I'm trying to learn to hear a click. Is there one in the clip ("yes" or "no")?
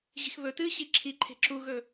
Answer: yes